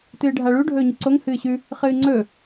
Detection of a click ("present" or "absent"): present